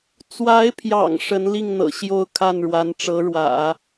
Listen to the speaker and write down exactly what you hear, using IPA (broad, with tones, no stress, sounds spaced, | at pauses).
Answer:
t͡s w a˧˥ ɪ̯ pʰ j ɑ̰˨˩ ŋ ʂ ə˧˥ n l i˥˩ ŋ n̪ ɤ̰˨˩ ɕ j o˥˧ ʊ̯ kʰ a˥˩ n ɻ w a˧˥ n ʈ͡ʂ ɤ˧˥ ɻ w ä̰˨˩˦